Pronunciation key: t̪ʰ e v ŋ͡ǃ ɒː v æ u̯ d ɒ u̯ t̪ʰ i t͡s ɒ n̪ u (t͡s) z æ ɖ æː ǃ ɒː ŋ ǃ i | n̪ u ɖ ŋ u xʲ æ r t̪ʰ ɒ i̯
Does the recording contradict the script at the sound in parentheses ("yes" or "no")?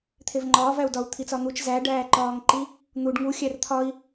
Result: yes